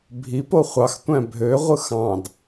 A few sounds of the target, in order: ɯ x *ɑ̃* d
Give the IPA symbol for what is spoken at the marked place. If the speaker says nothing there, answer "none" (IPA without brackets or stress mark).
ɑ̃